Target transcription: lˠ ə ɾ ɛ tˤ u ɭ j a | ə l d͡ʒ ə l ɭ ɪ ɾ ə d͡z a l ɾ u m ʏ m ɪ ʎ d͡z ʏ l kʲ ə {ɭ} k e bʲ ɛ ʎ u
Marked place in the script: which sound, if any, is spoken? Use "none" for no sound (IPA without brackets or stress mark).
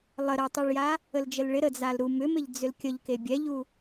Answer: ʎ